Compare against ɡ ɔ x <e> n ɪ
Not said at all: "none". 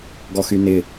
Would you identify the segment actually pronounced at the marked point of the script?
y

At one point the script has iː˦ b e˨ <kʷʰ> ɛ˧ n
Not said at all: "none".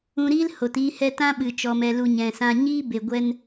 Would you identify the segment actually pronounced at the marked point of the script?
ɡʷ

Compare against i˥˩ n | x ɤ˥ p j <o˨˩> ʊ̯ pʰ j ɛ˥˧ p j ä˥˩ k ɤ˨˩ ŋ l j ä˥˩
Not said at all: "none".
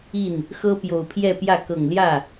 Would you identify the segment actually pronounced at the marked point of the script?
o˨˩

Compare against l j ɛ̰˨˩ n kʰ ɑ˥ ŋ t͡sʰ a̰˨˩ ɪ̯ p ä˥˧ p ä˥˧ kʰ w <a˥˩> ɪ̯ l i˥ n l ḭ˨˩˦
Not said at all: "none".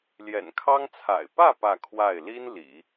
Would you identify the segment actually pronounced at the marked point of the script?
a˥˩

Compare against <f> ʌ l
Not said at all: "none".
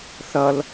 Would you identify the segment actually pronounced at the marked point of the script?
θ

